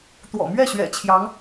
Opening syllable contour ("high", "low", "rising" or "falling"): low